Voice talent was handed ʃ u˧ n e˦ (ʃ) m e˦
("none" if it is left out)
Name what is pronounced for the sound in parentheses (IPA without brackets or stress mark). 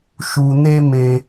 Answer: none